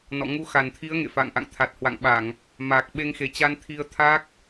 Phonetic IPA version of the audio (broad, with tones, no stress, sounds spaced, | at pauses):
n ɔ̰˧˨ ŋ u˧ x a˨˩ n t̪ʰ i˨˦ ə̯ ŋ ḛ˧˨ f a̰˧˨ ŋ ʔ a̰˧˨ ŋ t̪ʰ a˨˩ t̚ h w a̰˧˨ ŋ ɓ a˧˩˨ ŋ | m aː˨˩ k̚ ɓ e˧ ŋ x e˨˩ t͡ɕ a˧ n t̪ʰ i˧ ə̯ t̪ʰ a˦˥ k̚